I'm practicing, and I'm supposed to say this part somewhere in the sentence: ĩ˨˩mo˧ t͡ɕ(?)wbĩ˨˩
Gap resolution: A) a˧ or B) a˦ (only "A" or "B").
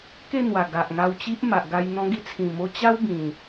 B